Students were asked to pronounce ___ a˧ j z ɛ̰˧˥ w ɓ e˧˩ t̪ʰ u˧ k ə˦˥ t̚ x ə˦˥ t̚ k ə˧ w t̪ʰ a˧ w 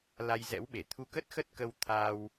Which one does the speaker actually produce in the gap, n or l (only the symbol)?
l